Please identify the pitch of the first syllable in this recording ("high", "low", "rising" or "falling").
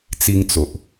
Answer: high